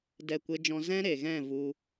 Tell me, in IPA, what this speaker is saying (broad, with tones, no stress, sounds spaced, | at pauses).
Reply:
d ɛ˦˨ kʷ e˦ d͡ʒ ɔ̃˦ z ɛ̃˦ ɾ e˨ ɣ ɛ̃˦˨ v u˦